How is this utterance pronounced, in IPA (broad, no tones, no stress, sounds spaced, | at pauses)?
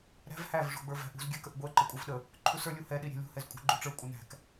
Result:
ɾ æ̤ v h æ v ʐ ṳ ɡ͡b ə˞ v æ̤ ʔ ṳ z ɡʲ ɛ k ə ʔ ɡʷ ɛ ǃ ə kʷʼ ɛ v ɗ ə | ǃʰ u s ə˞ lʲ u h ɛ ɗ i ɾʲ æ̤ lʲ ṳ h ɛ z kʷʼ æ̤ ɡ͡ǃ u ʈ͡ʂ ə˞ kʷʼ ə n æ̤ k